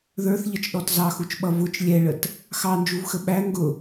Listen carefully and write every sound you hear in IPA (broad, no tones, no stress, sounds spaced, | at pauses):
ð ə˞ θ ʎ ʌ t͡ʃ ɗ ɔ t z ɑ x u t͡ʃ ɓ ʌ v ʊ t͡ʃ lʲ ɛ ɭ ə t | x ɑ n d͡ʒ u v x ə ɓ æ ŋ ɡ ʊ